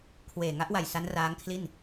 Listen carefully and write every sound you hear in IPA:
kʰ w eː˨˩ ŋ a˦˥ ʔ w a˨˩ j s a˦˥ n r aː˦˥ ŋ kʰ l i˥˩ n

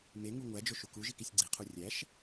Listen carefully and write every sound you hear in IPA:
m e ŋ u ŋʷ æ d͡ʒ o ʃ u k u ʒ i k i sʲ ɡ͡ǀ i qʰ u rʲ æ ʃ

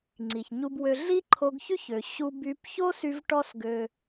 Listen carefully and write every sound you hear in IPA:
ŋ͡ǀ i˩ ç ɲ u˧ b w ø˧ ɮ i˥ ǃʰ o˧ ɡ ç y˥ ç ø˩ ɕ u˧ b y˧ p ç o˥ s y˧ v ʈ ɔ˥ s ɡ ø˧

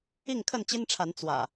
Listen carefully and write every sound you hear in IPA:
i˥˨ ŋ kʰ ə˥˨ n t͡ɕ i˦ n ʈ͡ʂʰ a˨˦ n t͡s w ä̰˨˩

